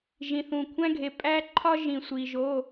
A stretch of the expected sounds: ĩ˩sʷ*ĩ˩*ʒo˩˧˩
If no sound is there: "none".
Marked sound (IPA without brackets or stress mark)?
i˩